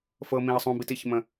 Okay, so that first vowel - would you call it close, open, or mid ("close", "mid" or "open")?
mid